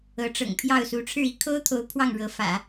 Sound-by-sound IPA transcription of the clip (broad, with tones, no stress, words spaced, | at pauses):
ɤ˧˥ʈ͡ʂɤ̰˨˩ŋ pʰjɑ˥˩ʊ̯ su˧˥ʈ͡ʂʰɻ̩˥˧ i˥˩kʰo˥ʊ̯t̪ʰo˧˥ʊ̯ pʰwɑ˥˩ŋɻɤ˧˥fä̰˨˩˦